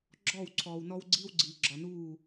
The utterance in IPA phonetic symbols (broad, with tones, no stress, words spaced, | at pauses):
ɡ͡ǁɔː˦˨wǀʰɔː˨wnɔ˦w ɡ͡ǀiː˦wɡ͡ǀiː˨ɡ͡ǁɒ˨nuː˦˨